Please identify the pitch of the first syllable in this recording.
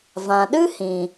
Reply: low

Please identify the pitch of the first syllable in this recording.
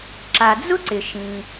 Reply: low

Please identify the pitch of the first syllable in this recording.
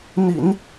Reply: low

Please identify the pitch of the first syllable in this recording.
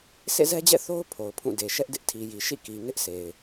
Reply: falling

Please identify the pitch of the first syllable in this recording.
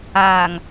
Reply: low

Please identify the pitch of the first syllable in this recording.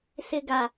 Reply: low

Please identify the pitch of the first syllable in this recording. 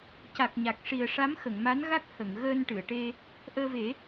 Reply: low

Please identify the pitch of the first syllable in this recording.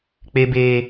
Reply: high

